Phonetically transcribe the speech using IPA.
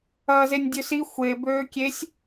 ɐː z e nʲ dʲ ø s i xʷ e b øː kʲ e sʲ

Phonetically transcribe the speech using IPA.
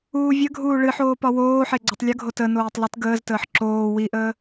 uː vʲ ə ɡʱ uː ɭ ɨ ħ oː p ɒ w oː ħ e ɡ͡ǀ ɒ tˤ lʲ ə ɡʱ o t ə n oː tˤ l ɨ t ɡ əː z t əː ħ ǁ oː w i ʔ əː

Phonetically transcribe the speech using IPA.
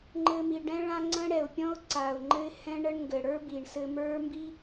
ŋ͡ǃ ɘ˧ m i˨ ɖ ɛ̃˦ ɭ ã˦ ŋ͡ǀ ə̃˦ ɽ ɛ˨ ʊ̯ pʲ ɔ̃˦ ʊ̯ ǀ a˨ ʊ̯ ŋ͡ǃ ɘ˦ ɪ̯ h ɛ̃˦ ɳ ə˦ ɳ ŋ ɡ ɘ˨ ɽ ə˞˦ b i˨ ɳ s ɘ˧ m ə˞˦ m b i˦

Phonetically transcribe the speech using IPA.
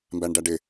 m b æ ɳ ɖ æ ɖ ɪ

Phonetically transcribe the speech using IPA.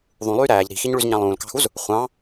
ðˤ ũ lˠ yː ɾ æː ʎ ɾ i̤ x i ɲ ɭ y z ɲ ɑ̃ lˠ ũː l k ɑ̤ x u z | χʷ ɑ̃

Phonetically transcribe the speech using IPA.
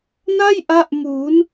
n a˥˩ j ʔ a˦˥ ʔ m uː˩˦ n

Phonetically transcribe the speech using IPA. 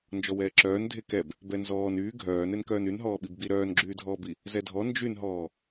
n d͡ʒ ɔ w ɛː ǁ œː n dʱ e k ɛ b | b ɛ n z ɔː n yː ɡʱ œː n e n k œː n y n ɦ ɔː ɓ i b ɡ͡b i ɾ œː n ɡ͡ǁ yː dʱ ɔː b i | z ɛ dʱ ɔ n d͡ʒ y n ɦ ɔː

